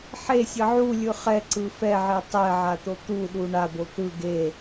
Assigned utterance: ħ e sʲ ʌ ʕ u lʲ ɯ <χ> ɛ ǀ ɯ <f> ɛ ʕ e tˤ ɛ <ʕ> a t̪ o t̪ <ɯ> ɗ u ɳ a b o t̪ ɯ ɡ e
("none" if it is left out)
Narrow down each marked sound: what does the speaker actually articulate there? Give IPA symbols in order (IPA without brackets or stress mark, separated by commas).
χ, f, ʕ, u